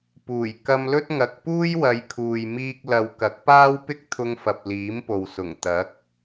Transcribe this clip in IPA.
puː˨˩j kɐ˧mlɵ˥t̚ ŋɐ˧k̚ puː˥jwɐ˨˧jkʰuː˨j miː˧k̚lɐ˨˧wkɐ˨˥k̚paː˥w pɪ˥k̚t̪ʰʊ˧ŋfɐ˨p̚ liː˨˥mpo˨wsʊ˨˩ŋ t̪ɐ˨˥k̚

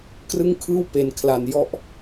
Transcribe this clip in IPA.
krɯ˥˩ŋkʰɯː˥˩wpe˨˩nkʰla˨˩n jɔ˦˥ʔ

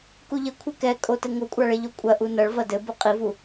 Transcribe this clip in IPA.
kuʎɘ kʷʰɘkɛkʼotɘ ŋokʷʼaɭeʎo kʷʼɐʔu nɐɭ vɐdɘ buqʼivu

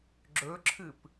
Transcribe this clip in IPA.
ɡ͡ǁɵǁʰɨp

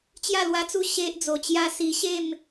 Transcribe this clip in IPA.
t͡ɕja˥˧lwa˧t͡su˥˧ ɕe˦ʔd͡zo˨˩t͡ɕja˦si˧ ɕe˥˧m

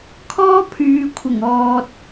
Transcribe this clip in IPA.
kʰɔː˥pʰyː˨kʷʰɪ˨˩ŋɔː˨t̚

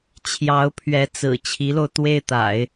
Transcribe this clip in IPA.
t͡ɕʰjɑ˧˥ʊ̯pʰɥɛ˧˥t͡sɹ̩˨˩ t͡ɕʰi˧˥lo˧ʊ̯t̪we˥˩ɪ̯t̪a̰˨˩˦ɪ̯

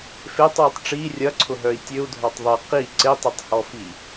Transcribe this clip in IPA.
fetˤwœtˤ ʈ͡ʂi rʲɐǀʰʊɦœi̯ tʲøu̯dʱɔtˤ ðˤi qi ǀetˤetˤhɔfi

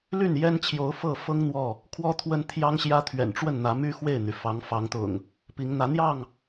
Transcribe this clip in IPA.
ly˥˨njɛ˦nt͡ɕʰjo˨˦ʊ̯ fɤ˥˨ fɤ˦ŋ n̪wɔ˥˨ | kʰwɔ˦t̪ʰwə˦nt̪ʰjɑ˦ŋɕjä˦ t̪ʰɥɛ̰˨˩nʈ͡ʂwə˥˨nn̪ä˨˦ my˦ xwe˥˨ɪ̯n̪y˩fɑ˨˦ŋ fɑ˨˦ŋt̪ʊ̰˨˩ŋ | pi˨˦ŋn̪ä˨˦n̪jɑ˥˨ŋ

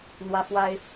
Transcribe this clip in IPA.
n̪wä˦fwa˦ɪ̯

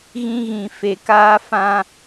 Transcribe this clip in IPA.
ɣĩ˧ɣĩ˨ fe˨kaː˧fã˧

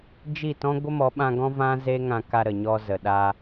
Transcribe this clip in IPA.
d͡ʒi˦˨tɔ̃˦ ɡʷə˦mɔ˨˦ɓã˧ɡɔ̃˦ vã˦ze˦ŋã˧ka˧ ɾə˨ɲɔ˧ zə˨ɗa˧

